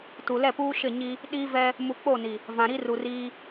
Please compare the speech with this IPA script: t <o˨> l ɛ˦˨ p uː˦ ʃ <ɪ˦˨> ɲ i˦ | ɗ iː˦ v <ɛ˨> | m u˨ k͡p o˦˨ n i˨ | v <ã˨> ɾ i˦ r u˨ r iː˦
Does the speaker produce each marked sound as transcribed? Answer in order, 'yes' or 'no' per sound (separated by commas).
no, yes, no, yes